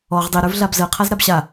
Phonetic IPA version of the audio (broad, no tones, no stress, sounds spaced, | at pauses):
ɔ ʁ dˤ i ɾ ə˞ v ɮ a b z ɜ qʰ a z ɾ a b ɕ a